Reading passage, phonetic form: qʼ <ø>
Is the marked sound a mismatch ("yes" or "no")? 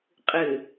yes